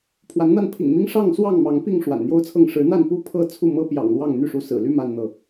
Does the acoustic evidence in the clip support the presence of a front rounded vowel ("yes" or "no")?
yes